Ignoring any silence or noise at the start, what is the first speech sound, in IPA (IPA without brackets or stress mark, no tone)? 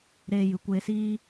ɾ